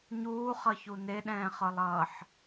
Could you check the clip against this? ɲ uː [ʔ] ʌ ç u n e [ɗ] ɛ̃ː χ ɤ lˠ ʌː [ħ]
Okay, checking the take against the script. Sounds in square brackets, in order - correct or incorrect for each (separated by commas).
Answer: incorrect, correct, correct